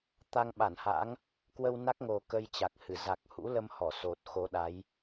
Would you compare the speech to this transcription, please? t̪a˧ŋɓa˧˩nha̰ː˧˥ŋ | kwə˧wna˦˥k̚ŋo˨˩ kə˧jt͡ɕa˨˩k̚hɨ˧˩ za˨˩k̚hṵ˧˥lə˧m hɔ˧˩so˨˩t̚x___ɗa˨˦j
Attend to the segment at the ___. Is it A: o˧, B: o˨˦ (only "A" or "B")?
B